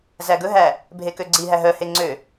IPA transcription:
zæɡɵɦæ | bʱekøɡ͡ǀiɦæ ɦœhe ŋ͡ǀø

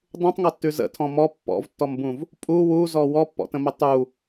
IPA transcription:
dˤũtˤŋɔtːʉ zə̰tʰɔ̃ mɔ pːɔ̰vtːɔmbũv | pʼu wuzɔ wɔpːɔ̰tə̃mə tˤu

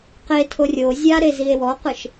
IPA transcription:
qetʰo rʲo zʲaɾe zie̯wɔqɯʃ

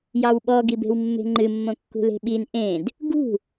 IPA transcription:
jɑwɓɔ ɡibe̤wmːe̤ŋ͡ǃɨ mːõkːṳle̤ɓin ʔẽd | ɡṳ

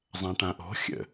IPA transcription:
zˤãʈãʔo̤ xʲə̰

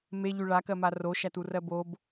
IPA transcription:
meʎy ɭakɜma roʃæturɜ bob

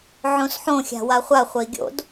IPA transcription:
ʕõsħõ xʲa̤waχʷa χʷəi̯ɡʲo̰d

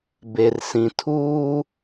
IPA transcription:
be˨r sĩ˨ tʰuː˦

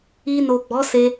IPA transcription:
i˧no˨ɡ͡bɔ˨˦se˧

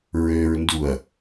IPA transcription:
ɹøɹnduɐ̯

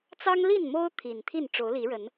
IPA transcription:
t͡sɑ˦ŋli˥˨nmo˦ʊ̯ t̪ʰi˨˩nt̪ʰi˥˨n ʈ͡ʂo˨˦ʊ̯li˨˦ɻə˨˦n

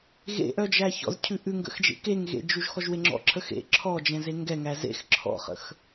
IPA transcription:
ɣḛʔœd͡ʒæ çɔ̰zcʰʉ ʔʉŋɡə̰xd͡ʒḛ keŋɣḛd͡ʒuʒ xɔʒweŋ͡ǁɔ̰ǁʰə xḛ ǁʰɔ d͡ʒɛ̃zeŋɡɛ ŋæzḛx ǁʰɔ̰χə̰x

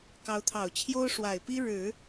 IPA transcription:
kɑ˧˥ʊ̯t̪ʰɑ˨˩ʊ̯t͡ɕʰjo˥ʊ̯ ʂwa˨˩ɪ̯pi˥ ɻɻ̩˨˩˦

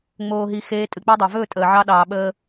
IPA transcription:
ŋ͡moː˧ɦi˧ xeː˧ tʼɨ˩k͡pi˧dˤɑ˩vɵː˥˩ tʼəː˩ʕɑ˧ɗɑː˩ ɓəː˧

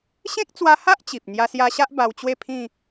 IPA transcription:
ɕẽ˦k̚t͡swa˧ha˦ʔ t͡ɕi˨p̚ n̪ja˧sja˧ɕa˦ʔ ba˧wt͡ɕwe˥˧pʰĩ˥˧

